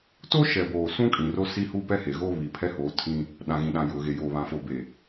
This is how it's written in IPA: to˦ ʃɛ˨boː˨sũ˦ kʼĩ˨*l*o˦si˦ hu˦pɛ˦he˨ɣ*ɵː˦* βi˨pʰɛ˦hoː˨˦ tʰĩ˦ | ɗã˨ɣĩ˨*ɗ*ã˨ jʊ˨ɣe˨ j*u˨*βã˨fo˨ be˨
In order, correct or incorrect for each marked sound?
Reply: incorrect: r, incorrect: oː˦, correct, incorrect: o˨

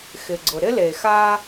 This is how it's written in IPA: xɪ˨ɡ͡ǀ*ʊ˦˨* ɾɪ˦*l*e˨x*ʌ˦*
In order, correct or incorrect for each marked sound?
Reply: incorrect: ʊ˨, correct, incorrect: a˦

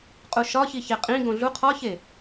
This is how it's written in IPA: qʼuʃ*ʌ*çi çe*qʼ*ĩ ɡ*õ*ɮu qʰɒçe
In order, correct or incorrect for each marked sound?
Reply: incorrect: ɒ, correct, correct

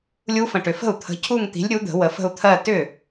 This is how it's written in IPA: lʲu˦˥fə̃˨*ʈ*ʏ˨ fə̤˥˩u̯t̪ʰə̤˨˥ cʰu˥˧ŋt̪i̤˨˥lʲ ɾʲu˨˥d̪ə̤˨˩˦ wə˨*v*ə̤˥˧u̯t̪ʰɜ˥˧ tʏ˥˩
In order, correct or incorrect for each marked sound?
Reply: correct, incorrect: f

